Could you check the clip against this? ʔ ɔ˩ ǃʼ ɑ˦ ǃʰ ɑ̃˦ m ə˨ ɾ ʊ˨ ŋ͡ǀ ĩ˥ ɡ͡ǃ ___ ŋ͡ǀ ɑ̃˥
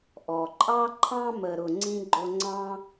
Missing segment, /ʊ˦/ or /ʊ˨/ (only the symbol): ʊ˦